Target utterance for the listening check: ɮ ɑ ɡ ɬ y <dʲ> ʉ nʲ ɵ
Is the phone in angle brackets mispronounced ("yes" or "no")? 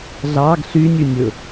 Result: yes